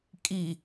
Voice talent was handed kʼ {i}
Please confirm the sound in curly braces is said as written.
yes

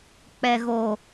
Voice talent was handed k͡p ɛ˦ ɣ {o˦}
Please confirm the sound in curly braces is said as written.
yes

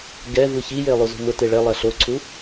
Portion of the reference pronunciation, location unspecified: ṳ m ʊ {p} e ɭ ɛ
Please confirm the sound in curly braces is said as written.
no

